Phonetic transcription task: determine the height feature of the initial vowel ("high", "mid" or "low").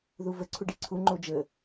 high